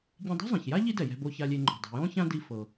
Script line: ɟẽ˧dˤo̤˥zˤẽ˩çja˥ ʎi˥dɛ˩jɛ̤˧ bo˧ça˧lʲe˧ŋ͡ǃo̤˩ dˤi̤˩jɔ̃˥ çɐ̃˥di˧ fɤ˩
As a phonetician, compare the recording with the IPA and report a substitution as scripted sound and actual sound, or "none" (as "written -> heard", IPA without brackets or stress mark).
ɐ̃˥ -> ã˥